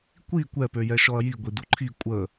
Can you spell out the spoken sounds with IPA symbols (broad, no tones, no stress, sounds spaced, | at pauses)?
kʷ i kʷ ɛ p ø j ɛ ʃ ɔ ɐ̯ j i ɡʷ i d u ǃʰ i kʷʼ ə